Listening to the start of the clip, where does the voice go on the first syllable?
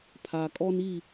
low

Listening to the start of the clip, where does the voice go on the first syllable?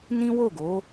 high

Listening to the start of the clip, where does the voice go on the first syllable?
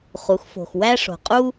rising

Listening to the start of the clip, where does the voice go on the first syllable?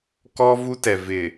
high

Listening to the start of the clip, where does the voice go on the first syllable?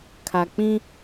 low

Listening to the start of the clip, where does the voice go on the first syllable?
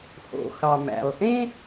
low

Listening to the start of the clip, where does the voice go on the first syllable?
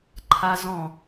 high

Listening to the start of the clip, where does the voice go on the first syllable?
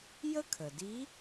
high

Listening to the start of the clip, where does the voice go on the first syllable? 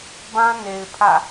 high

